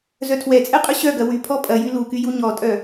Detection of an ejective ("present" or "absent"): present